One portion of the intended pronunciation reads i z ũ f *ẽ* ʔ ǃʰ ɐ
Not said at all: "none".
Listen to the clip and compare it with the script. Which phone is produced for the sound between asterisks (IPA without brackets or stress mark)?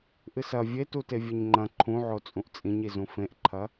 ẽ